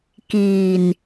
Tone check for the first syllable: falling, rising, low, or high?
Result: low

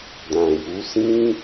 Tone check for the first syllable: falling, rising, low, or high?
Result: low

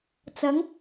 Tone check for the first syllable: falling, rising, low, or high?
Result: rising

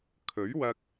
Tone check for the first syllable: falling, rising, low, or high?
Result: rising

